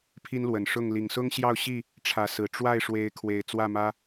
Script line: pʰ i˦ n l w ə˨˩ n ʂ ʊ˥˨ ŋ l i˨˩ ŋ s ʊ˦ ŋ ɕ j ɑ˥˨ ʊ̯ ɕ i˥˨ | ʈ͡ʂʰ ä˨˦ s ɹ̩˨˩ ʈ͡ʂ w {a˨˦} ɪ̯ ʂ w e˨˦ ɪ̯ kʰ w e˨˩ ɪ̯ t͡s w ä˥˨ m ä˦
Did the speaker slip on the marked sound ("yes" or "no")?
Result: yes